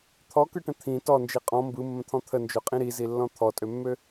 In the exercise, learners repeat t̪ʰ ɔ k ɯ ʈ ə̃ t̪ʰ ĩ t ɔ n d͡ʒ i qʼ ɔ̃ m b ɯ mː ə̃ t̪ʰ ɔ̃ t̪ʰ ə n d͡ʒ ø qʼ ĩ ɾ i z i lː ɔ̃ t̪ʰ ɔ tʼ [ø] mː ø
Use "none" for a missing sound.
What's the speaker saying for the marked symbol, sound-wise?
ø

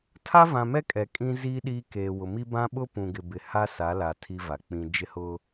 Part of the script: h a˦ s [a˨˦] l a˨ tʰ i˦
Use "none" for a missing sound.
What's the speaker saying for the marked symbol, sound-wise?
a˨˦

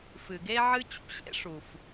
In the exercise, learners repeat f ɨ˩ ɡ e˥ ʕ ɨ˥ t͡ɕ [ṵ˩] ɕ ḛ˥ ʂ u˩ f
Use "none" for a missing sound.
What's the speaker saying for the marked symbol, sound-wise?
ṵ˥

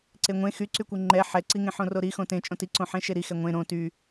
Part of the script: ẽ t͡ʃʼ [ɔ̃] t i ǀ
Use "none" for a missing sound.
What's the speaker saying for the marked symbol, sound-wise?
õ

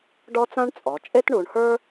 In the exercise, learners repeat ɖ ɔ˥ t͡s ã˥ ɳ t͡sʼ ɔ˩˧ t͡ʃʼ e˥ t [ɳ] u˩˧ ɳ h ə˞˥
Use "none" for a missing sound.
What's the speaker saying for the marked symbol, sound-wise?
ɳ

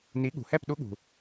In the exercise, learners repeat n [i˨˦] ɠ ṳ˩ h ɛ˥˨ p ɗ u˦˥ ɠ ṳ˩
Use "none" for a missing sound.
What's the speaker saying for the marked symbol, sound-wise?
i˨˦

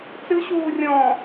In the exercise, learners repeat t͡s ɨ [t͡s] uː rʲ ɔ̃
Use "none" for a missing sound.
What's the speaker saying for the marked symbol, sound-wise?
ɕ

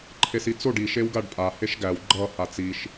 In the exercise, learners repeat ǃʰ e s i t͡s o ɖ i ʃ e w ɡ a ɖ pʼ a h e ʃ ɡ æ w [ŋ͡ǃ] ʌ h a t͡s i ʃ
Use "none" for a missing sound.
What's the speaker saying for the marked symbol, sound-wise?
ɡ͡ǃ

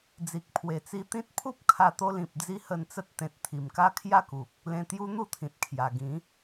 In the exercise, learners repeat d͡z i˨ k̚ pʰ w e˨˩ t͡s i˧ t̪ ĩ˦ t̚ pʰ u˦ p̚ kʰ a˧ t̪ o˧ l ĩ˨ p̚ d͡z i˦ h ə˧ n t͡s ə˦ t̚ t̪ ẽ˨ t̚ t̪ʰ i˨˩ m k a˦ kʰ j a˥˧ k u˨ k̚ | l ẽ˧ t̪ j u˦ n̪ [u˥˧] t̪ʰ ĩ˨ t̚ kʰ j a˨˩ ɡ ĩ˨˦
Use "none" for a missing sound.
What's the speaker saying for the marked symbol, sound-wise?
u˥˧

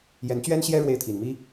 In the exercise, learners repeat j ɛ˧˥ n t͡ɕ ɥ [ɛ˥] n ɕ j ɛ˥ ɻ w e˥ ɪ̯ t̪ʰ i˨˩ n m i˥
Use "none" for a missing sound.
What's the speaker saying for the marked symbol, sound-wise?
ɛ˥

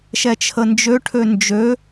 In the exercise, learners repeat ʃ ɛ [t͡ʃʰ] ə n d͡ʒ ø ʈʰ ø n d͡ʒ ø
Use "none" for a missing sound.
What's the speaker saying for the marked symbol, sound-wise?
t͡ʃʰ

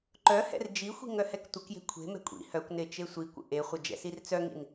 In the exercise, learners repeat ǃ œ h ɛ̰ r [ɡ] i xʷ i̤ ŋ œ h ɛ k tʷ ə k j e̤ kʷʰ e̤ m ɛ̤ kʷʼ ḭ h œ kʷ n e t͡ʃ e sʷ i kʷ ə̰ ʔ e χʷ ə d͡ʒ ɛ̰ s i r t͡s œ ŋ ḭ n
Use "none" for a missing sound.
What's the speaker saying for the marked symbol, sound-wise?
d͡ʒ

